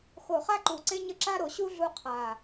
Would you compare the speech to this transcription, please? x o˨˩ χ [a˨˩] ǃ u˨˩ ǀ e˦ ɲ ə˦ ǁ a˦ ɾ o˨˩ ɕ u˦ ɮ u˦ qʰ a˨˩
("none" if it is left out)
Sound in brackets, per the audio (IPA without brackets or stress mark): a˦